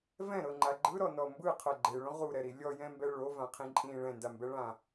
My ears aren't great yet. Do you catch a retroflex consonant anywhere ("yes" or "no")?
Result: yes